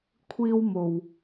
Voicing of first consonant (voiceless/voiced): voiceless